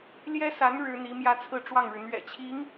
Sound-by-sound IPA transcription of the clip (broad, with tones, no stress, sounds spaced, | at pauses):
l j ɛ˥ s a˧˥ n ɻ ɻ̩˥ n̪ i˧˥ m j ä˥ t͡sʰ ɹ̩˥˧ ʈ͡ʂ w ɑ˥˩ ŋ ɻ ɻ̩˩ n̪ ɥ ɛ̰˨˩ t͡ɕʰ i˧˥ ŋ